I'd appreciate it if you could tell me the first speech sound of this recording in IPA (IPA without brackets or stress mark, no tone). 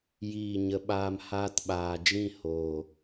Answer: j